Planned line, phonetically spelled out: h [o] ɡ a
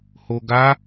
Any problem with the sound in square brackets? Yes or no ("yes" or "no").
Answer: no